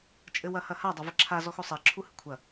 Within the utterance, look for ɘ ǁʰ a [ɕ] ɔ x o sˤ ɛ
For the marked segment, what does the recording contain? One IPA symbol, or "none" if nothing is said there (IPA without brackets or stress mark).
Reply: z